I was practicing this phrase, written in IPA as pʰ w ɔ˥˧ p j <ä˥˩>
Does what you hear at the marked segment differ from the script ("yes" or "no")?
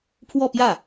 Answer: no